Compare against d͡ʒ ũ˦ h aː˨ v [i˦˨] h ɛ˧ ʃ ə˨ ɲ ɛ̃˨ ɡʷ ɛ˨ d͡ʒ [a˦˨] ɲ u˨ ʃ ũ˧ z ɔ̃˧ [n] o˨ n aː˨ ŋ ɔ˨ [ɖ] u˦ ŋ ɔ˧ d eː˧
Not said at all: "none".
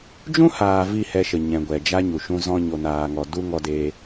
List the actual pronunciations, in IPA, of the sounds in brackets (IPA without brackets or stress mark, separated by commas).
i˦˨, a˦, ɲ, d